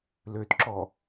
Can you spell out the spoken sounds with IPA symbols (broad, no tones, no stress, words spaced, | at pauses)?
løtǁɔ